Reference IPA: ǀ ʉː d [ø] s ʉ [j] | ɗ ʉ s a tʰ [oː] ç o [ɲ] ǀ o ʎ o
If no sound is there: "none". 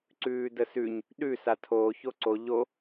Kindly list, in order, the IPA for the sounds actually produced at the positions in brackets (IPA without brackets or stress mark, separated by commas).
ə, ɲ, oː, none